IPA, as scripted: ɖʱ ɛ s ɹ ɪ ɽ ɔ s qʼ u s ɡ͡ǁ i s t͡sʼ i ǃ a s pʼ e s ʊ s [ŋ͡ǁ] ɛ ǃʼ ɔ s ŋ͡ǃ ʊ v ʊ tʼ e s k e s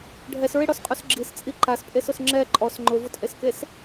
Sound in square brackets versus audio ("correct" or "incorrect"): correct